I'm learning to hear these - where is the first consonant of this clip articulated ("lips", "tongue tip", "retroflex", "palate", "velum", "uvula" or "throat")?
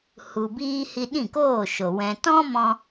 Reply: throat